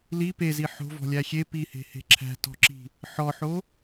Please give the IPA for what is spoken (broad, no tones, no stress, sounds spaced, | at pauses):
l i p e z i ħ o̤ v ɔ̤ lʲ æ xʲ e p i h e̤ h e̤ ǁʰ æ̤ t ɔ̤ ǁ i̤ | ħ ɔ ħ o